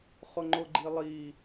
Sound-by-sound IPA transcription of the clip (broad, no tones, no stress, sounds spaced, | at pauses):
χ ʊ ŋ͡ǃ ʊ ɡ͡ǃ i lˠ i